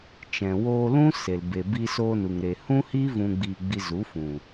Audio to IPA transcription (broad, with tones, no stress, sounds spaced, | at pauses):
t͡ʃ ɛ̃˨ w oː˧ l ũ˦ s e˨ l b e˨ b i˧ s oː˧ n u˨ ŋ ɾ e˨ h ũ˦ h i˦ v ũ˧ ɡ͡b i˧ ɡ͡b i˧ z u˨˦ f ũ˨